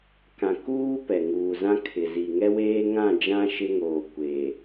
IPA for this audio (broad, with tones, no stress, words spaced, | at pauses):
kã˨kuː˦ pɛ˨ŋuː˨zã˦ kʰɪ˨zi˨ ŋɛ˦weː˦ŋã˦˨d͡ʒã˦ ʃɪ˦ŋoː˨kʷeː˨